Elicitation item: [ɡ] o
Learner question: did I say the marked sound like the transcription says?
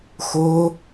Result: no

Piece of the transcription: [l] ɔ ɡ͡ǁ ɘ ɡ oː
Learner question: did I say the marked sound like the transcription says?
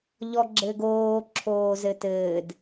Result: no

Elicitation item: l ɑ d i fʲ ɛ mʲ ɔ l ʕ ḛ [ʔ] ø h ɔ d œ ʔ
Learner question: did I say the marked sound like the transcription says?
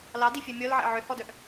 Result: no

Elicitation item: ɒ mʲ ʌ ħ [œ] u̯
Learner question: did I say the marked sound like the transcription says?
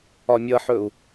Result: no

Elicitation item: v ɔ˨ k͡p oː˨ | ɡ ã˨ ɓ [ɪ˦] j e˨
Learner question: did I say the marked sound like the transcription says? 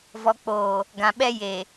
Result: no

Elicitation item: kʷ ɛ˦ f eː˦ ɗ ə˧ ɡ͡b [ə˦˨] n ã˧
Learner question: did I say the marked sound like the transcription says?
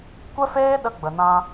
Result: no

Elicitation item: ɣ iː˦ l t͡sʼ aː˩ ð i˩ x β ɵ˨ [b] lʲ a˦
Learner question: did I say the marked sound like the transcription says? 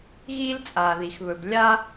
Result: yes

